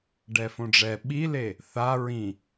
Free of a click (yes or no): yes